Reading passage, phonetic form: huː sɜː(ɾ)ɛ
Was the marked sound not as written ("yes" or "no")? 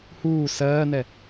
yes